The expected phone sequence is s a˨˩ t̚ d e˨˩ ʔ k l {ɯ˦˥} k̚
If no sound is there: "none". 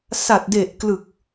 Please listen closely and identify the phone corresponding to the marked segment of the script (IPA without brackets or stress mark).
ɯ˨˩